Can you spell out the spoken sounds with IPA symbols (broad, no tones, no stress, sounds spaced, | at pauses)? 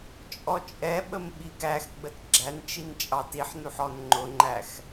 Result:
t͡ʃʼ ɔ t͡ʃʼ ɛ ɓ ə m ɓ i ɡ æ x ɡ͡b ə t ɡ͡ǁ æ n t͡ʃ i n t͡ʃʼ ɑ t i ħ n u ħ ɔ n ŋ͡ǃ ʊ ŋ͡ǃ æ x